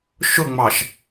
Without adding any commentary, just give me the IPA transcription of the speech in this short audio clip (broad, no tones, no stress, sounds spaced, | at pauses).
ʃ ʊ ŋ͡m ɑ ʃ